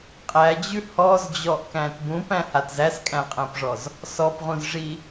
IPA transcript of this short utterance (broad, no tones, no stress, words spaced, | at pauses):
qʼæd͡ʑʉ hɔzd͡ʑɔʔkæ̃t bũpæ̃hat zæskʼæ̃qʼæ̃pʐɔz | sɔpʁũzʐi